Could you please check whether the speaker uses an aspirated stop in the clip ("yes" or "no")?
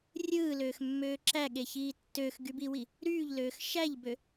no